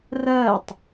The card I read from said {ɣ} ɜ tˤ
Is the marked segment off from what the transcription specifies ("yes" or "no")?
yes